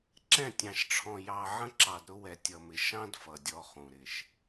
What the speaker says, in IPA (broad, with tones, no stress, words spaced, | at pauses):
ǁɛ̃˦˨tʲɑ̃˨ʃʈ͡ʂʰɔ̃˨ jɑ˨ʕə̃˦ ǁɑ˨dɾʊ˦wɛ˨ tʲʌ˨mɪ˨ ʃɑ̃˦d fʌ˨dʲɔ˦χũ˨ ɾɪ˨ʃ